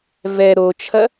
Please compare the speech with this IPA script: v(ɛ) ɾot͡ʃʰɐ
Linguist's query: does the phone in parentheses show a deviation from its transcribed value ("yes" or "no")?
no